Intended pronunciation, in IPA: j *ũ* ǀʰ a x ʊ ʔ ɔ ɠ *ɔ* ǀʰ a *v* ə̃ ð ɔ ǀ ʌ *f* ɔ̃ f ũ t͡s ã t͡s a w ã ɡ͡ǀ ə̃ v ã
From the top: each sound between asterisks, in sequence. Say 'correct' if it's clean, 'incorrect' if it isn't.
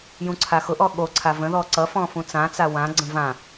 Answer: correct, incorrect: o, correct, correct

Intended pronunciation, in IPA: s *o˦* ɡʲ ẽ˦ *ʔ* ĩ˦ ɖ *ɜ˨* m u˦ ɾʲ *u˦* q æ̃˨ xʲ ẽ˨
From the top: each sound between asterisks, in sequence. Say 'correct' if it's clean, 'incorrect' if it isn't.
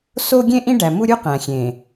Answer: correct, correct, incorrect: æ˨, correct

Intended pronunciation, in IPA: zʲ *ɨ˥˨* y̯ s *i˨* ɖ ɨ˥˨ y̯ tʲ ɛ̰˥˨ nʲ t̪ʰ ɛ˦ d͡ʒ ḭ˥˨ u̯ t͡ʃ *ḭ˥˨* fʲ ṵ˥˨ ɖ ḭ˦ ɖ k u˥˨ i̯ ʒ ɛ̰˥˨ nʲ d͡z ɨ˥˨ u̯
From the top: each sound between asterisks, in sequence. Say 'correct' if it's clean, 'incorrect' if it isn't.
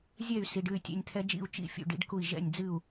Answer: incorrect: ɛ˥˨, correct, correct

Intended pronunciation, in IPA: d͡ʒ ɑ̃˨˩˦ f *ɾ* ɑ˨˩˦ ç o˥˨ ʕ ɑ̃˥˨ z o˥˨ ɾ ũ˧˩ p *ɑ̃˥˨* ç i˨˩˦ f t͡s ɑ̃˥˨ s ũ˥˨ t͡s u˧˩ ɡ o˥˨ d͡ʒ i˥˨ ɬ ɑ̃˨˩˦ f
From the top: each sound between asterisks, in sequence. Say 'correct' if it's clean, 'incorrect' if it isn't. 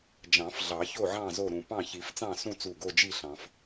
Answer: incorrect: ɮ, correct

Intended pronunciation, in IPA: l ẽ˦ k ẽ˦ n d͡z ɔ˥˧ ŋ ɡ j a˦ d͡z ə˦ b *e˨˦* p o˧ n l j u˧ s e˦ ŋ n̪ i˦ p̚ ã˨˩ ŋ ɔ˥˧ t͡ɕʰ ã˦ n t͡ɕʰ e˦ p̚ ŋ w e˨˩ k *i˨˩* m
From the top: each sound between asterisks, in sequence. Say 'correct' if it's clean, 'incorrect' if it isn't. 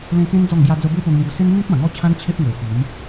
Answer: incorrect: e˦, incorrect: i˨˦

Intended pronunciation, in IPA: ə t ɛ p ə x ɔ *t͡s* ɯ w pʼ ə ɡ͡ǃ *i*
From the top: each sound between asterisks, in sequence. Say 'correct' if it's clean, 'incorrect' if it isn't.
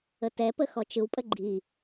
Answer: incorrect: t͡ʃ, correct

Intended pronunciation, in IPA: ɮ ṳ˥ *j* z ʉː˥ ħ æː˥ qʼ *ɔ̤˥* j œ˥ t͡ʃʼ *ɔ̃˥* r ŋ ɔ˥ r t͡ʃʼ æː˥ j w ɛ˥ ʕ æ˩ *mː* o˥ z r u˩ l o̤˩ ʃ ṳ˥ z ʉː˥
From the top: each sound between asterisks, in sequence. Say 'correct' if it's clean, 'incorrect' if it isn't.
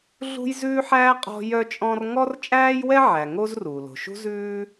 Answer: correct, correct, correct, incorrect: ŋ

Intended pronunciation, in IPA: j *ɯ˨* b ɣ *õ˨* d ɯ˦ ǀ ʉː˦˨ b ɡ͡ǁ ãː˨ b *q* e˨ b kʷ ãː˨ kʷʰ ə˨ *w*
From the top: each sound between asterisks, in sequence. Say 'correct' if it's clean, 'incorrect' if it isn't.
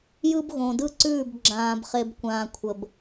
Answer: incorrect: ɯ˦, correct, incorrect: χ, incorrect: b

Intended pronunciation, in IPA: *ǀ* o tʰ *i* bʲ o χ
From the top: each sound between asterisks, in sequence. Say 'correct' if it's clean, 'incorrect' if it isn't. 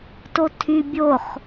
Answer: incorrect: t, incorrect: y

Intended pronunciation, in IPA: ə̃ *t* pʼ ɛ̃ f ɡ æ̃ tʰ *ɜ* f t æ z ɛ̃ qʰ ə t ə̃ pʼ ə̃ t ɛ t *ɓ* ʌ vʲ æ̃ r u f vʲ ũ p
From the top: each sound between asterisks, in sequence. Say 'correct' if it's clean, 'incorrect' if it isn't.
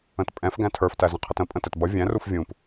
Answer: correct, incorrect: ə˞, incorrect: b

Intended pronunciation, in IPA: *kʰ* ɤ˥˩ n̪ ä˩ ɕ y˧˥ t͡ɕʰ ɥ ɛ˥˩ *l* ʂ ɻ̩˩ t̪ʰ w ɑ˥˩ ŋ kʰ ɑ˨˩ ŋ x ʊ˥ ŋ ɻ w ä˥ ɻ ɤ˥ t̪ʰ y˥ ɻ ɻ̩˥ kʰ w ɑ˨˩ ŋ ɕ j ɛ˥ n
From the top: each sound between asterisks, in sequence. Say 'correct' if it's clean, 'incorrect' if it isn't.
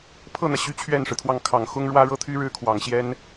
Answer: incorrect: pʰ, incorrect: n

